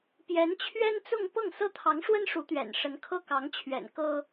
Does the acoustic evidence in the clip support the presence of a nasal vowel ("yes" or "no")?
no